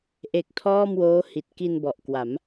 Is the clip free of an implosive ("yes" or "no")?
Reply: yes